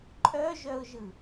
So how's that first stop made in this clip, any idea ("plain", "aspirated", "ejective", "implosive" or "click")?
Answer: click